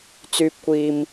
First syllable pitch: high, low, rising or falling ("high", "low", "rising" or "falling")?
low